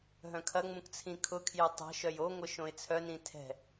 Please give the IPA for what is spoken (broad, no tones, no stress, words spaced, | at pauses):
ɦœ̃kʰɐŋ͡mũk t͡sʰĩkʰʊkʰjø tˤɛ̤ʃœj oŋʷə ʃõɪ̯t͡sʰœnĩ tʰɛ̤